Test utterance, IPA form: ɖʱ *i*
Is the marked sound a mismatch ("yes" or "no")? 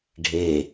yes